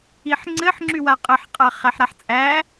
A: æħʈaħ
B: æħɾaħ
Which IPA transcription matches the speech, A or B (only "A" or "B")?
B